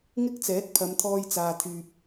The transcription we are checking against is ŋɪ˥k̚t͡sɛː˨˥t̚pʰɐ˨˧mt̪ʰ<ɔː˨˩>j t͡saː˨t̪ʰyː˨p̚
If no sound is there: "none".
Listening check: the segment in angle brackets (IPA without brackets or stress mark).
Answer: ɔː˧